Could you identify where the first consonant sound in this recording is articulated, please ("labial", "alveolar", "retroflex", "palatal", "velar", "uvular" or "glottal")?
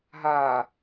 glottal